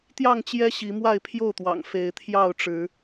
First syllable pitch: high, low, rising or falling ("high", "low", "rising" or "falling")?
falling